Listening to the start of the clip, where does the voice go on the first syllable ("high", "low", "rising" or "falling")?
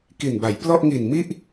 low